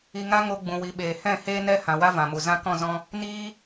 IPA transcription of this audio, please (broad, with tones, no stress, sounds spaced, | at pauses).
i˧ ŋ a˦ ŋ o˧ ɡ͡b ũ˨ w i˨ ɓ eː˨ h ɛ̃˦˨ h eː˦ n ɛ˦ h ã˨ w a˦ v ã˨ m u˨ z ã˦ k ɔ̃˦˨ z ɔ̃˦ | n iː˦